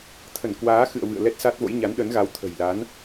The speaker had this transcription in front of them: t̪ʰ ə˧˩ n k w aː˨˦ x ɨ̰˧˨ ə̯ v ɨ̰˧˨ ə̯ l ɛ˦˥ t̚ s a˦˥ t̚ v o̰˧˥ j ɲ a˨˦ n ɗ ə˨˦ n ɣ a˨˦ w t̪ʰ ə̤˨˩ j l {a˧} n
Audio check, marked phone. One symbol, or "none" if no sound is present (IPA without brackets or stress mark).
a˨˦